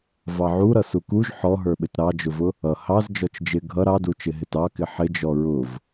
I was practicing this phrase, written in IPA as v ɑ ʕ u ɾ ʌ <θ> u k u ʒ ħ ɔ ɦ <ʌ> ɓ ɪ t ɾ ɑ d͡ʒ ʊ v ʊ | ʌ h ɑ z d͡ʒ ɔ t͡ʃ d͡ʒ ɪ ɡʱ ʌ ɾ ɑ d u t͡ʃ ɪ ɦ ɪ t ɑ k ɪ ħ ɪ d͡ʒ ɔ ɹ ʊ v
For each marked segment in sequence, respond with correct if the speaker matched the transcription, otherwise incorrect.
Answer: incorrect, incorrect

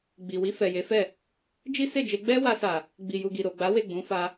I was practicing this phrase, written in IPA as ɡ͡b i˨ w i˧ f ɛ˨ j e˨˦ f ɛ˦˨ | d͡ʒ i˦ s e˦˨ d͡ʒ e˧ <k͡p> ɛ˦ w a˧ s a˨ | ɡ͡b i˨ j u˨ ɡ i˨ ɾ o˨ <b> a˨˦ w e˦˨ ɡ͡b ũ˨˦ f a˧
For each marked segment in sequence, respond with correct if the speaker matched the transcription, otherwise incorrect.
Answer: incorrect, incorrect

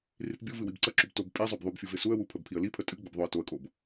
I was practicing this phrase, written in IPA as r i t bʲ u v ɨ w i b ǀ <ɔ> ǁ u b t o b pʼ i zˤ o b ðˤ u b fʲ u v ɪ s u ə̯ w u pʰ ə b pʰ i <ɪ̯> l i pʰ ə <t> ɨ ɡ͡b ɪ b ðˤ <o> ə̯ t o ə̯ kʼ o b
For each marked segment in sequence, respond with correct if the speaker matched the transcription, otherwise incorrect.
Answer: incorrect, incorrect, incorrect, correct

